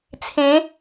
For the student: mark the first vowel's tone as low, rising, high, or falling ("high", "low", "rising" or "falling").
rising